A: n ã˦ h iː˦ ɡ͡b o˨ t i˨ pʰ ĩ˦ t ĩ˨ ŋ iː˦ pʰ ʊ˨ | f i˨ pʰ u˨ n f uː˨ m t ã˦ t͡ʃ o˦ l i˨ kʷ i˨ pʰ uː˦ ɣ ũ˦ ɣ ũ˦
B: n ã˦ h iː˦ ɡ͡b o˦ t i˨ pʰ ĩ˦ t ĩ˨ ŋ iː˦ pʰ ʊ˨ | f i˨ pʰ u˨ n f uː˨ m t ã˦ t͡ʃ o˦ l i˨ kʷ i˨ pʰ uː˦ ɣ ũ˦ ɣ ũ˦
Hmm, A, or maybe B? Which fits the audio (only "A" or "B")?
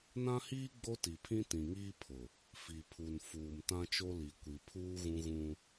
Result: B